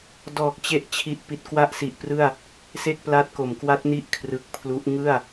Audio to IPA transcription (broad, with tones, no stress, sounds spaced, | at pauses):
d ɔː˨˩ k̚ t͡ɕ e˦˥ ʔ t͡ɕʰ i˨˩ ʔ p i˨˩ t̚ k w a˥˩ ʔ s i˨˩ ʔ p r ɯ˥˩ a̯ | s e˥˩ k̚ p l a˦˥ t̚ k o˩˦ m k w a˦˥ t̚ n i˥˩ ʔ kʰ r ɯ˨˩ k̚ pʰ l u˦˥ ʔ ŋ ɯ˥˩ a̯